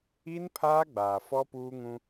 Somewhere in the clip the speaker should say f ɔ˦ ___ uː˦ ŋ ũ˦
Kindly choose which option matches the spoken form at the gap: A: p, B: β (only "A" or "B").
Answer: A